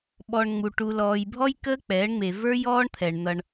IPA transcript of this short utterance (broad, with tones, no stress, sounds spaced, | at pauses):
ɓ ɔ˨ ɳ ŋ͡m u˨ ʈ u˨ l ɔː˨ j bʱ ɔ˦ j k əː˦ k͡p ɛː˨˦ ɳ ŋ͡m e˨ v ə˞˦ j ɔː˦ ɳ t̪ʰ ɛ˨ ɳ n̪ ʌ˦ ɳ